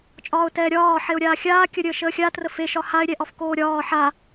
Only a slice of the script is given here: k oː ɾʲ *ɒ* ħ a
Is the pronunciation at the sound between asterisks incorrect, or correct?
incorrect